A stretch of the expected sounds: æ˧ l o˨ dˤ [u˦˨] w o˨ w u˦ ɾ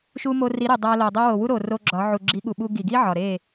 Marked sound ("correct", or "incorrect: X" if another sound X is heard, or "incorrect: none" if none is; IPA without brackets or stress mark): incorrect: u˧